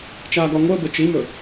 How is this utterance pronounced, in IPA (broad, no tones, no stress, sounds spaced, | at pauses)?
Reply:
t͡ʃ aː ɡ ɒ ŋʷ əː b ɘ t͡ʃ i m ɵ